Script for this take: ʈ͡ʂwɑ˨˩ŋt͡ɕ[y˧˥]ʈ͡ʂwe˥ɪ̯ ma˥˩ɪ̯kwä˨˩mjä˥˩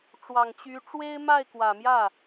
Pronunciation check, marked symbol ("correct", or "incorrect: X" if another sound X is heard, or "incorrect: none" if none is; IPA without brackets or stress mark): correct